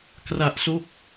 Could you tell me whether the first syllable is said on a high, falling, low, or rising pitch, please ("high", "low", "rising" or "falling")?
low